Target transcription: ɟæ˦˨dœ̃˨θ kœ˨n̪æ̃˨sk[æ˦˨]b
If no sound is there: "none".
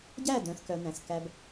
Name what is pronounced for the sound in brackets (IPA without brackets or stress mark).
æ˧